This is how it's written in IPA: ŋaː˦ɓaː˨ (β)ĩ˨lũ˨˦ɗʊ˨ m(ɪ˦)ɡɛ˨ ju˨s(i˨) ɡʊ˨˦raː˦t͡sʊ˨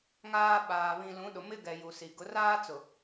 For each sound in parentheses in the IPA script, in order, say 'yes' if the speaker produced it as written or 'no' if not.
yes, yes, yes

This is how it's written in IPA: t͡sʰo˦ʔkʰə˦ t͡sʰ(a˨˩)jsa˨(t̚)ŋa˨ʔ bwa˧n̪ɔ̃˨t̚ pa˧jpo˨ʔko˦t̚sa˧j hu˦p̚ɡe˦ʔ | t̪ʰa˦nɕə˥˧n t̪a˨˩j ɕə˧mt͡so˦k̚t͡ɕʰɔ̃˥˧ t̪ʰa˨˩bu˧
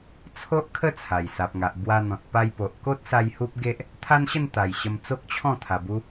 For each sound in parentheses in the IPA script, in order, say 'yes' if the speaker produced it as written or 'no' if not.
yes, no

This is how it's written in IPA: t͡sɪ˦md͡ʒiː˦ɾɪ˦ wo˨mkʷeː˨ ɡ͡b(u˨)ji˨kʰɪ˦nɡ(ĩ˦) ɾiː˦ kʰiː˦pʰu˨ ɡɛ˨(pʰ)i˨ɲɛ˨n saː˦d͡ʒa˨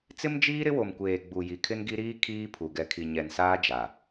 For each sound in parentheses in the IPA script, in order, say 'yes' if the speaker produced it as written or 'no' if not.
yes, no, no

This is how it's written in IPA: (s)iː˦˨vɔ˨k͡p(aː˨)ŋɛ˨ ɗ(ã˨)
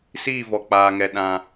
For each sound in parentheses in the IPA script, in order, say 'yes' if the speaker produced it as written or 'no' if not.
yes, yes, no

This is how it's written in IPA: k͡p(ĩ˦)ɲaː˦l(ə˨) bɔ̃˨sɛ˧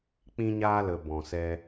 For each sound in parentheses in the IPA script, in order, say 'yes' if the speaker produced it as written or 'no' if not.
yes, yes

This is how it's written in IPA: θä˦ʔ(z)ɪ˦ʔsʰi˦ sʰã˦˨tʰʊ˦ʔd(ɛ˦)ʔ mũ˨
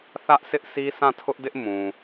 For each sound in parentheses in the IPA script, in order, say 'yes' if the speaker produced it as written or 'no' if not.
no, no

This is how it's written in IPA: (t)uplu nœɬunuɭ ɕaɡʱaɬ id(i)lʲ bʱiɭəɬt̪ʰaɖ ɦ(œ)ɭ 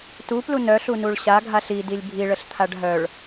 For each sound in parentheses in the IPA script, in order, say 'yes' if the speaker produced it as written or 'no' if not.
yes, yes, yes

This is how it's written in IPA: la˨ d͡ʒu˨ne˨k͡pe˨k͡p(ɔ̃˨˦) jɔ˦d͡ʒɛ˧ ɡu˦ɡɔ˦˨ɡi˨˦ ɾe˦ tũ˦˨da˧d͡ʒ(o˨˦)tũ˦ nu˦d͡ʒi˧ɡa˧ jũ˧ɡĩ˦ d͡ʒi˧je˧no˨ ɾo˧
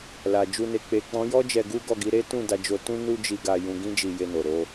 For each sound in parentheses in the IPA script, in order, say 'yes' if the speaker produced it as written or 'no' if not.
yes, no

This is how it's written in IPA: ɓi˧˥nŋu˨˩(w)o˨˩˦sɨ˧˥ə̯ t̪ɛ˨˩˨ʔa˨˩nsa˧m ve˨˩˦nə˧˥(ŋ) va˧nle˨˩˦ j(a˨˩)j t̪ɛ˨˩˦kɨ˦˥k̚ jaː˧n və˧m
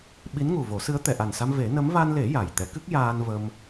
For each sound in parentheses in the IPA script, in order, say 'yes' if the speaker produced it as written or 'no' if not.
no, no, yes

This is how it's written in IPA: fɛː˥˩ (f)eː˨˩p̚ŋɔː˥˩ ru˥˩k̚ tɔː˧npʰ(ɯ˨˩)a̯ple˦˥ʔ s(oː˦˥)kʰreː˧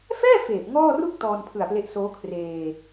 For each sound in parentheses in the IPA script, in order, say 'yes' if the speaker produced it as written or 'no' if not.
yes, yes, yes

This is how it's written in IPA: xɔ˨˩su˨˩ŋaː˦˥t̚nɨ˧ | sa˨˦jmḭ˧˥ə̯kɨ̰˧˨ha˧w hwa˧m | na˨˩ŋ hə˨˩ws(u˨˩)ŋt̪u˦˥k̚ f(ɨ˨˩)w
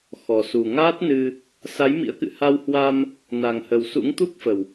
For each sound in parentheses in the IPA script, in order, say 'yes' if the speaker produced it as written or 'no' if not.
no, no

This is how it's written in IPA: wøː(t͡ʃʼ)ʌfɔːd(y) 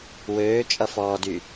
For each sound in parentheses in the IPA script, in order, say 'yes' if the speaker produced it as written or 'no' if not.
yes, yes

